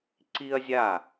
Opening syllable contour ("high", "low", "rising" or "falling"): high